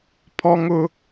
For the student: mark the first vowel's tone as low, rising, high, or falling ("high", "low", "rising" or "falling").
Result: high